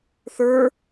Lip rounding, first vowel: unrounded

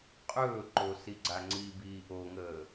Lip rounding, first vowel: rounded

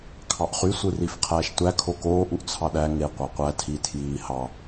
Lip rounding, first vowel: unrounded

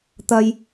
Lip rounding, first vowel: unrounded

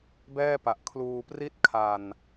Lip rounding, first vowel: unrounded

